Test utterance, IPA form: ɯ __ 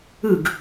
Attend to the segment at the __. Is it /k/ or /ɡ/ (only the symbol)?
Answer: ɡ